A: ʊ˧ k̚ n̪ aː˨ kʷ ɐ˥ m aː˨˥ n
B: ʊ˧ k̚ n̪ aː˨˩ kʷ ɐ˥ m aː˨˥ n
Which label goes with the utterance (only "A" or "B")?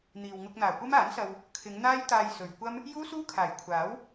B